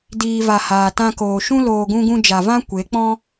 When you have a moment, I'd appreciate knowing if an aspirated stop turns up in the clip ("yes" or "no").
no